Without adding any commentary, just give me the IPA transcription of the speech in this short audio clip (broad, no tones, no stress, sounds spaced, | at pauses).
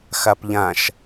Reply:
x a p ʎ ã ʃ